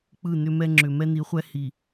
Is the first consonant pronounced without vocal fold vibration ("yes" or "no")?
yes